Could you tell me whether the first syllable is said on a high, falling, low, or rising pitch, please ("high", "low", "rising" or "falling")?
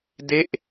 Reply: falling